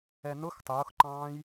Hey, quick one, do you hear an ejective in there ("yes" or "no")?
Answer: no